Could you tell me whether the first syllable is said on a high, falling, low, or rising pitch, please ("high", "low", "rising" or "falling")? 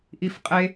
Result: high